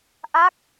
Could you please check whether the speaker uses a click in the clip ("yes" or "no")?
no